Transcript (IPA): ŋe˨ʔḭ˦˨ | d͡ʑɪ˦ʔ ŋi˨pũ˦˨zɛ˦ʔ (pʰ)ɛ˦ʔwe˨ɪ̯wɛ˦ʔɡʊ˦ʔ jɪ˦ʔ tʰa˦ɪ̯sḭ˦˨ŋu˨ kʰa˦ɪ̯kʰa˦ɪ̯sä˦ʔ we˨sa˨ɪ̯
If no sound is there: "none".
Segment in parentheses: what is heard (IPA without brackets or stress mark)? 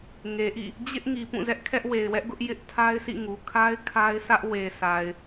kʰ